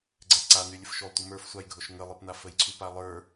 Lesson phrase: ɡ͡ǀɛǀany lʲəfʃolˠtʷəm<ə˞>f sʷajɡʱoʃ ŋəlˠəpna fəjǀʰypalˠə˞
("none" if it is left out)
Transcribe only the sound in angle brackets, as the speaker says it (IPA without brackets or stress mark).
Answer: ə˞